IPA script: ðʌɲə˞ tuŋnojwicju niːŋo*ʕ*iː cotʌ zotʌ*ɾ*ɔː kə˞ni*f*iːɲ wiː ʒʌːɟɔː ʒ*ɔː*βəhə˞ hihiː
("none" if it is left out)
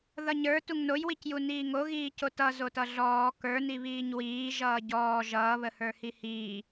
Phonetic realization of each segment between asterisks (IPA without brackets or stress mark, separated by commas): ɣ, ɮ, β, ʌː